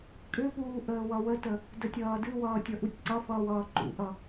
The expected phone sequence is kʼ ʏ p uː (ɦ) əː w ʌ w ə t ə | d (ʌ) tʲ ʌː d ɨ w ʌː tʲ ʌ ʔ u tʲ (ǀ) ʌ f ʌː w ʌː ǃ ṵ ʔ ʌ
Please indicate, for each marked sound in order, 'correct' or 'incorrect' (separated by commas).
incorrect, incorrect, correct